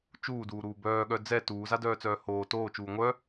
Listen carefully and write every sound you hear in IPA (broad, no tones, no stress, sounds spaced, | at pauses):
t͡ʃ uː d uː ɾ uː b œː ɠ œ d͡z ɛ t uː z a d œː t͡s œː h oː t oː t͡ʃ uː ŋʷ œ